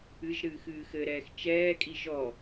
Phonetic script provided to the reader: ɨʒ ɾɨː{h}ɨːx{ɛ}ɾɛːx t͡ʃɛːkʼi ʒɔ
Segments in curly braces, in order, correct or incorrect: incorrect: x, incorrect: ɘ

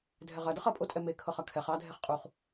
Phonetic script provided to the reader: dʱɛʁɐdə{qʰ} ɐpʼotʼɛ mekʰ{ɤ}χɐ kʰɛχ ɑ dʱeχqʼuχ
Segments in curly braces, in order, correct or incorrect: incorrect: χ, correct

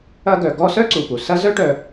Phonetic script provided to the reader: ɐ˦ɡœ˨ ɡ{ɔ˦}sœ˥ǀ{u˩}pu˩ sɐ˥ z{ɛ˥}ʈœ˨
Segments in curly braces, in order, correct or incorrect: correct, correct, incorrect: œ˥

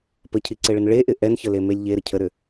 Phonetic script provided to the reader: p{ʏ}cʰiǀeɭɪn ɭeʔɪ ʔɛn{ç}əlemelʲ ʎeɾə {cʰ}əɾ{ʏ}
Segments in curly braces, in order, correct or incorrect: incorrect: ə, correct, correct, correct

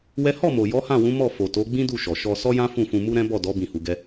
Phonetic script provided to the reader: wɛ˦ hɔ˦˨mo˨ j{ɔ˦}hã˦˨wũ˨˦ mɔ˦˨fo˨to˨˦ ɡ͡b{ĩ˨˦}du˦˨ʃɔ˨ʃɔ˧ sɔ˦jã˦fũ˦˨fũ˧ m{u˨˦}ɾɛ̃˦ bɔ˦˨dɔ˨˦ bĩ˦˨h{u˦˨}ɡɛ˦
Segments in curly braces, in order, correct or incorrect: incorrect: ɔ˨˦, incorrect: ĩ˦, incorrect: u˦, incorrect: u˨˦

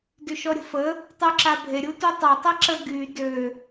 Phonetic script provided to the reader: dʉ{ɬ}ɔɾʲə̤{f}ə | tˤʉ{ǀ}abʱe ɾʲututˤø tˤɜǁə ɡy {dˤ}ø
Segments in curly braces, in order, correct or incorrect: incorrect: ʃ, correct, incorrect: ǁ, incorrect: d

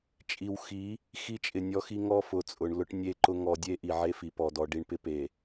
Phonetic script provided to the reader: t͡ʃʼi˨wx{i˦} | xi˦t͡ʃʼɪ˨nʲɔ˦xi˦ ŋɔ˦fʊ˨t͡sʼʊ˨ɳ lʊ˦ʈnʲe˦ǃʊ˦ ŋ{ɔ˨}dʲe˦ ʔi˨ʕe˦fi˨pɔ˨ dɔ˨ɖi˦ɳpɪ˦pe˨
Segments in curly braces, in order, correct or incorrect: incorrect: i˨˦, correct

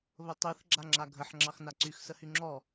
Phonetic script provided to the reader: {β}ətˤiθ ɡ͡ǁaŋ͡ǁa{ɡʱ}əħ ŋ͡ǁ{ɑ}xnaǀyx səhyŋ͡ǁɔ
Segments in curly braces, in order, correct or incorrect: correct, correct, correct

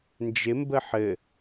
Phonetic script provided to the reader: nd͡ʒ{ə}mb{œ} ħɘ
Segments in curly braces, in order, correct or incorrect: incorrect: ɪ, incorrect: ə

